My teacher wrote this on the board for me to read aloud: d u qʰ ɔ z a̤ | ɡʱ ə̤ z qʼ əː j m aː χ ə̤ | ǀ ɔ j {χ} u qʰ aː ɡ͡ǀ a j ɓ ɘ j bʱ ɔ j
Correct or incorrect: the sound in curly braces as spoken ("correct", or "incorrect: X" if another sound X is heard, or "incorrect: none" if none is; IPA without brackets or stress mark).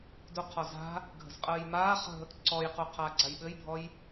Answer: incorrect: q